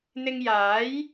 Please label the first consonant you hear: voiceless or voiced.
voiced